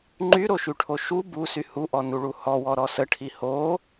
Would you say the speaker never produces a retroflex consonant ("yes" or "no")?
no